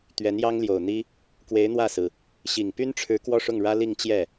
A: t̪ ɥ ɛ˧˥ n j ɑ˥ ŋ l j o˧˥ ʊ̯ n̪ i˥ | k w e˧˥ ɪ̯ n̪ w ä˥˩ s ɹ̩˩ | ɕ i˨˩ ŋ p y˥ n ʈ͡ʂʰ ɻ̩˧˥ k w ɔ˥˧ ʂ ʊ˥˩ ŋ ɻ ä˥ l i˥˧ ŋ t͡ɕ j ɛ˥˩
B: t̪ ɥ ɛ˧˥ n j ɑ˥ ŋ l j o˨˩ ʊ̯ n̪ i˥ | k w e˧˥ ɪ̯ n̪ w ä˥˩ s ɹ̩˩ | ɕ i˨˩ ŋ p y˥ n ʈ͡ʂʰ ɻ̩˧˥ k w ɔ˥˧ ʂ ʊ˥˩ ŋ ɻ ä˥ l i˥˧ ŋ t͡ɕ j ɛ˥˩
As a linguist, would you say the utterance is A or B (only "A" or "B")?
B